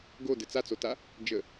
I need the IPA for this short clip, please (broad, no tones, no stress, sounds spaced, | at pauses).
ɡ o d ɘ t͡s a t͡s o t a | d͡ʒ ə